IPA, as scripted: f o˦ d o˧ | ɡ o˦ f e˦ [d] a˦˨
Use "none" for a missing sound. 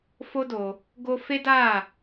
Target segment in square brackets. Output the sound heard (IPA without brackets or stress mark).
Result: d